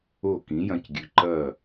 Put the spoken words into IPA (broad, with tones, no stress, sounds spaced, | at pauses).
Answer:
o˥˩ k ĩ˩˥ j ɐ̃˧ c ɡʲ ʉ˩ ǃ ɐ˥˩